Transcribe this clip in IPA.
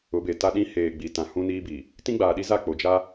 ʊ˨˦ b e˨ t a˦ ɗ ĩ˦ h eː˨ ɡ͡b i˨ t ã˨ h ũ˦ n iː˦ b i˨ | t ĩ˦ ɡ͡b aː˨ ɗ i˦ z a˦˨ k͡p o˨ d͡ʒ a˦

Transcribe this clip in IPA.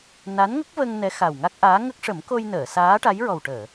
n a˧˥ n ŋ ə˦˥ k̚ v ə˧ ŋ n ɛ˧˥ x a˨˩ w ŋ a˦˥ k̚ ʔ aː˧˥ ŋ ə˦˥ k̚ ʂ ə˨˩˦ m k o˧ j n əː˨˩˨ s aː˧˥ ʈ a˧˥ j ɹ ɔ˨˩ w ʈ əː˨˩˨

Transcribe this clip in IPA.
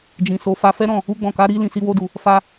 d͡ʒ ĩ˨ s o˨˦ f a˧ f ɛ˦ ɾ ɔ̃˦˨ | u˧ ɡ͡b ɔ̃˨ k a˨˦ ɾ i˧ l ĩ˨ s i˧ w o˧ d u˨ | f a˦

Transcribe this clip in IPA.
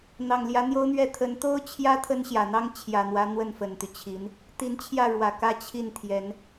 n̪ ɑ˨˩ ŋ l j ä˧˥ n̪ j o˥ ʊ̯ n̪ ɥ ɛ˥˩ t̪ʰ ə˧˥ n t̪ o˥ ʊ̯ t͡ɕʰ j ä˥ t̪ʰ ə˥ n ɕ j ä˨˩ n̪ ɑ˥ ŋ t͡ɕʰ j ä˨˩ n̪ w ä˧˥ n̪ w ə˥˩ n f ə˨˩ n t̪ y˦ t͡ɕʰ i˧˥ n | t̪ i˧˥ n t͡ɕʰ j ä˥˩ ɻ w ä˨˩ k ä˥˧ t͡ɕʰ i˥˩ n t̪ʰ j ɛ˧˥ n

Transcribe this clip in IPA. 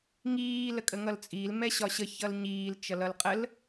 ŋ iː l ə kʼ ə ŋ ʌ l t͡sʼ i l m ɛ ɕ ɒ ɕ ə ç ʌ l ɲ iː l t͡ʃ ʌ l ʌ l qʼ ə l

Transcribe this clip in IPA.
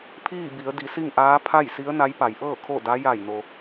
pʰ iː˥˨ b i˩˧ ə̯ d i˩˧ s i˥˨ ŋ ʔ aː˧˥ pʰ a˥˨ j s i˧˥ ə̯ n a˧˥ j p a˩˧ j ʔ ɤː˥˨ kʰ o˥˨ d a˧˥ j a˧˩ j n o˩

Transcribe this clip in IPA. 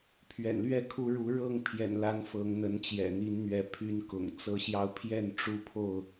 pʰ ɥ ɛ̰˨˩ n l ɥ ɛ˥˨ kʰ u˨˦ ɻ u˨˦ ɻ ɤ˥˨ ŋ pʰ j ɛ̰˨˩ n l a˨˦ n f ɤ˨˦ ŋ n̪ ə˨˦ n t͡ɕ j ɛ̰˨˩ n̪ i˨˦ n n̪ ɥ ɛ˨˦ pʰ y˨˦ n k ʊ̰˨˩ ŋ t͡s ɤ˨˦ ɕ j ɑ˧ ʊ̯ pʰ j ɛ˥˨ n ʈ͡ʂ u˦ pʰ o˥˨ ʊ̯

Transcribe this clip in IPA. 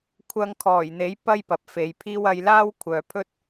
kʷʰ ɐ˧ ŋ kʰ ɔː˨˩ j n̪ e˨˥ j p ɐ˥ j p ɐ˨ p̚ f e˨˧ j pʰ iː˥ w ɐ˧ j l aː˥ w kʷʰ œː˨ pʰ ɵ˥ t̚

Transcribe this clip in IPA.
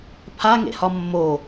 pʰ a ŋ ḛ h ɒ mː o

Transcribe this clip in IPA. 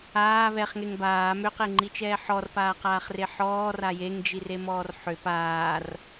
aː β ɛ χ ŋ e ŋ b aː m ø q e ŋ͡ǃ i t͡ʃ ɛː ħ ɔ r p aː q aː χ r e ħ ɔː r a j e ŋ d͡ʒ i r e m ɔː r ħ ø p aː r

